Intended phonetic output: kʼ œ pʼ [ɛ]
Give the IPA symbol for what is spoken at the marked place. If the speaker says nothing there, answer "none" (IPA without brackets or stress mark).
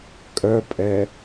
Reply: ɛ